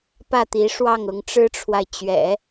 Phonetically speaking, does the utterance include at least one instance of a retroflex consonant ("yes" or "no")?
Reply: yes